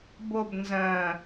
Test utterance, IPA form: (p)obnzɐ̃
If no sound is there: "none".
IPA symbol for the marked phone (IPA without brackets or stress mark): b